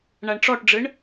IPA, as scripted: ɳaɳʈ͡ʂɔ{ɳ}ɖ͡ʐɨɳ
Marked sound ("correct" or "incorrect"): incorrect